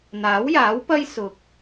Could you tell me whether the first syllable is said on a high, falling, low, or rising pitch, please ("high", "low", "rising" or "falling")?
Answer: rising